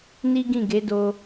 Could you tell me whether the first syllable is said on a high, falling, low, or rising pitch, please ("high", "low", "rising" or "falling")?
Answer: high